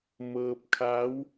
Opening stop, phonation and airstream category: plain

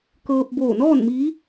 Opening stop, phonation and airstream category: plain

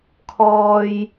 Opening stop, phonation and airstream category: aspirated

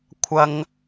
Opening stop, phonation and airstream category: aspirated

